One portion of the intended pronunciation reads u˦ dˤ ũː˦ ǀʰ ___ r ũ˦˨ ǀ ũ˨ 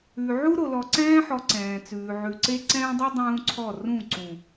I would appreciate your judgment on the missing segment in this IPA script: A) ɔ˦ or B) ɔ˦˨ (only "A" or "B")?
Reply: B